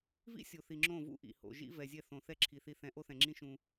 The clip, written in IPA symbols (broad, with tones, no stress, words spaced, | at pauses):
vḭ˦sʲo˨θi˨ ŋ͡ǁõ˦˨vṵ˦ʔḭ˨ho̰˨ ʒḭ˦vɛ˨zʲɛ˦˨θõ˨ θɛ˦ǁʰi˨ θi˨θɛ̃˨ ʔo˦θɛ̃˨ŋ͡ǁĩ˦ ʃũ˦